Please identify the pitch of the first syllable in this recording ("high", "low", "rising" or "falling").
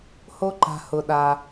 high